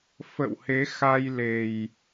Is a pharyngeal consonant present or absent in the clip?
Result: absent